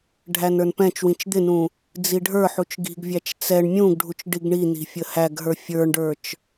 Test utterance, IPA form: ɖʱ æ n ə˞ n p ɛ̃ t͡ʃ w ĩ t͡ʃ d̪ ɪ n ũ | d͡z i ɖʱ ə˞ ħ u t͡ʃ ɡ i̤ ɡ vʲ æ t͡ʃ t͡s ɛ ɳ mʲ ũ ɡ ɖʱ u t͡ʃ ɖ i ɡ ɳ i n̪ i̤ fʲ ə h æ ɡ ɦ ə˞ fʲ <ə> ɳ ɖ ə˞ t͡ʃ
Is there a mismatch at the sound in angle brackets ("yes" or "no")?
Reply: yes